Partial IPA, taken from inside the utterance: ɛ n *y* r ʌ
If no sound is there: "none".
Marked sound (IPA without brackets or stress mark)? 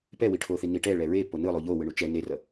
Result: e